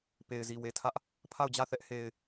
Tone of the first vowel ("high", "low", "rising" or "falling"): low